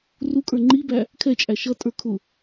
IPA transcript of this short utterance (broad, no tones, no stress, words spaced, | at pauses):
rukʼə˞ ŋ͡ǃibæ | kʰɛt͡ʃʼæ ʃʌtʼə˞ kʰʊ